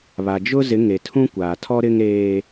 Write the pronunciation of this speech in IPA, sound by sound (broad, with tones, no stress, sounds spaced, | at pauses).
β a˨ d͡ʒ ʊ˦ z ɪ˨˦ ŋ e˨ tʰ ũ˦ kʷ aː˨ tʰ ɔ˦ ɾ ɪ˦ ŋ ɾ eː˦